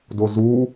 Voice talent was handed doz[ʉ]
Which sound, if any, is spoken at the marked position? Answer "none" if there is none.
u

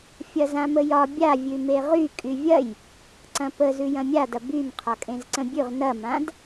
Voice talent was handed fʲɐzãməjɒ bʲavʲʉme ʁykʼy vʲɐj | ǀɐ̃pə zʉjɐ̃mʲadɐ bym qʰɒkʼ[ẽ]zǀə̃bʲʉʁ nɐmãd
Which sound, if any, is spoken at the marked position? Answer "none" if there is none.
ẽ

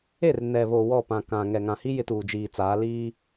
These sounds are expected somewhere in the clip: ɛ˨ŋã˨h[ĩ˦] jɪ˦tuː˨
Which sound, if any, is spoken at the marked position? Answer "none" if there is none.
i˦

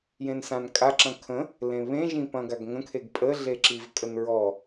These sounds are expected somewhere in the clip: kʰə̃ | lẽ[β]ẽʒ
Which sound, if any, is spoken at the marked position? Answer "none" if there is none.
β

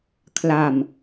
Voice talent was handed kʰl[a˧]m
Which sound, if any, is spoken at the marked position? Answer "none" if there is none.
a˧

